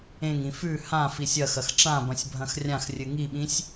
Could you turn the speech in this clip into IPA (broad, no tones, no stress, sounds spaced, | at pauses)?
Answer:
ẽ ŋ ĩ f ʉ h ã f i sʲ ɐ x ɐ x ʈ͡ʂ ã b ɐ̃ sʲ bʱ ɐ̃ x rʲ ã x rʲ ɨ ŋ i ɓ ĩ sʲ